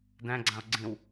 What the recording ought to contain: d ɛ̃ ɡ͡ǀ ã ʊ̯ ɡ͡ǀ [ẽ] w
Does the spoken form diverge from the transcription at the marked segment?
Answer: yes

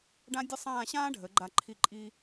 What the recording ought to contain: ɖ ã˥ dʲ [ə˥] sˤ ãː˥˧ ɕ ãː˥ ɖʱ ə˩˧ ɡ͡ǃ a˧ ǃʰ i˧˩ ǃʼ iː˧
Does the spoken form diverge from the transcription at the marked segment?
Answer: no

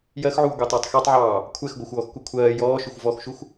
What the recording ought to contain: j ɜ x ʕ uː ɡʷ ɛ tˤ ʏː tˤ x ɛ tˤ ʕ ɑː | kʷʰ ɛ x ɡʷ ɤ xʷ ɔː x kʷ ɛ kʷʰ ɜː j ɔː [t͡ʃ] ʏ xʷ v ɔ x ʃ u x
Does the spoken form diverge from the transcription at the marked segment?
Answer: yes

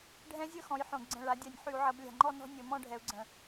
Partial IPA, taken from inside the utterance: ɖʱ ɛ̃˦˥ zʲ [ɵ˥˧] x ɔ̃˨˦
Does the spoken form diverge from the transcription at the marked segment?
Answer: no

